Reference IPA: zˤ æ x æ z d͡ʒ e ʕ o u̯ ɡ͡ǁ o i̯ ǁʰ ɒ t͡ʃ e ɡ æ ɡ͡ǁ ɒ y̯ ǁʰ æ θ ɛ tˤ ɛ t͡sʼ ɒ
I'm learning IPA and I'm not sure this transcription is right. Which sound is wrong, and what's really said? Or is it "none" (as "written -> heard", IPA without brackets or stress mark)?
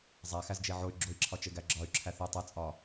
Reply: u̯ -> y̯